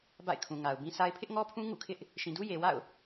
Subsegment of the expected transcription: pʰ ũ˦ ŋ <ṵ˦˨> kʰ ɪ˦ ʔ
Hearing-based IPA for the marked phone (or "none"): ṵ˦˨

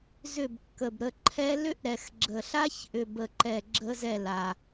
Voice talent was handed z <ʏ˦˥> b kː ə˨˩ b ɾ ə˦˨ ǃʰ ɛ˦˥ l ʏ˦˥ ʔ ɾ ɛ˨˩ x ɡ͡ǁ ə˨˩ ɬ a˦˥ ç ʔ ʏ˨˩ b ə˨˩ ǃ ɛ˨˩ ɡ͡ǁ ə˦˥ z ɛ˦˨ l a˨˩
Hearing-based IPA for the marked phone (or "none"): ʏ˦˨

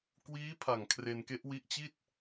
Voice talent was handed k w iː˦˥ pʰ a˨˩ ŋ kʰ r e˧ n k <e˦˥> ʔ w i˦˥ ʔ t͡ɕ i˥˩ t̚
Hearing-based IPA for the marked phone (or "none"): e˦˥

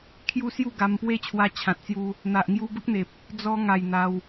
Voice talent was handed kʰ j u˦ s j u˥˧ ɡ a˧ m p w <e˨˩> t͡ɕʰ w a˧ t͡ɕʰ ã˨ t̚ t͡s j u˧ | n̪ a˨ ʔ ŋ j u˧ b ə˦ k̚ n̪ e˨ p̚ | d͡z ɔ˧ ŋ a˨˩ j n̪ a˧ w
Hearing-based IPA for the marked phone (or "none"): e˥˧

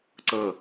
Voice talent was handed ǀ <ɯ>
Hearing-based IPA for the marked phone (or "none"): ɤ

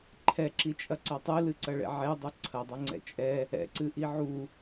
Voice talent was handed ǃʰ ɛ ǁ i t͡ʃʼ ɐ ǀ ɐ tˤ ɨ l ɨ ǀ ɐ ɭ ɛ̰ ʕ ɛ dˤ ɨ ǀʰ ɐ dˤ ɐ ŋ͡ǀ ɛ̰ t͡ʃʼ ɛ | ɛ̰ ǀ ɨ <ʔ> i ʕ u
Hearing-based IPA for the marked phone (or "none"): ʔ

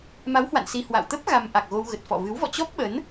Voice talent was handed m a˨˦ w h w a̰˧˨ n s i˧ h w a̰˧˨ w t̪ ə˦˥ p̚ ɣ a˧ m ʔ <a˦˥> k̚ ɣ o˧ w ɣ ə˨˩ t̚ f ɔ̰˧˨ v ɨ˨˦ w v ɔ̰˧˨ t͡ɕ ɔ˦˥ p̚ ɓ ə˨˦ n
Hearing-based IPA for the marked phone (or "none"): a˨˩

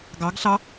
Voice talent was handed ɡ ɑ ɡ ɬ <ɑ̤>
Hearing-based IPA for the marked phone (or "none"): ɑ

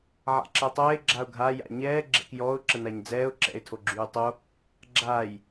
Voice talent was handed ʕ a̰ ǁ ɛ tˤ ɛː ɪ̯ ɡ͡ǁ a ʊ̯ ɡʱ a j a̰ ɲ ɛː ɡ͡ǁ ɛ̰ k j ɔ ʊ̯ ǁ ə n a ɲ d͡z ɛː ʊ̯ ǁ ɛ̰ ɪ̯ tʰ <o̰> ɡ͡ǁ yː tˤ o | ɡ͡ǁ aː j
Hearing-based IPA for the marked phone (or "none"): o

